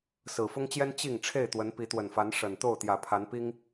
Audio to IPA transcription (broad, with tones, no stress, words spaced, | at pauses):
sɹ̩˨˩fʊ˦ŋt͡ɕjɛ˦n t͡ɕi˥˨ŋ ʈ͡ʂʰe˥˨ɪ̯t̪wə˨˦n pi˨˦t̪wə˨˩nfa˨˦n ʂə˨˩n t̪o˥˨ʊ̯t̪jä˨˩pʰa˨˦npi˦ŋ